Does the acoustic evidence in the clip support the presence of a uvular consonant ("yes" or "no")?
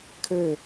no